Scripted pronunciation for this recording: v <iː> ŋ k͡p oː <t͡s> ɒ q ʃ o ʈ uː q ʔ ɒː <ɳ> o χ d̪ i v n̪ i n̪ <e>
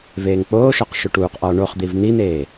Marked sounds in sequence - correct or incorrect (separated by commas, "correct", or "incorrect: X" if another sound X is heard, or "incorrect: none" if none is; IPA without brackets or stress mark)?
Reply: incorrect: eː, incorrect: ʃ, correct, incorrect: eː